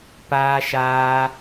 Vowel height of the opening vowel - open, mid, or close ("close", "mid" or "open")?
open